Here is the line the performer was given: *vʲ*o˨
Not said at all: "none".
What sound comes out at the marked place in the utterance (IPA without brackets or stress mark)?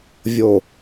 vʲ